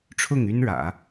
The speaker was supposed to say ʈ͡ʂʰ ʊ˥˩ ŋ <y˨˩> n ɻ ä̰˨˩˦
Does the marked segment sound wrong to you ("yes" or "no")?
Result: yes